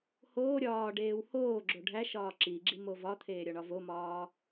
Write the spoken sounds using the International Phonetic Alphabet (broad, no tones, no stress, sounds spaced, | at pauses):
h oː ɾʲ ɒː ɖ eː w h oː ɡ͡ǁ o ɖʱ æ ʃ ɒː ǁ i ɡ͡ǁ i m o v ɒ t̪ʰ eː ɾʲ ɒ ɳ ɒ v o m ɒː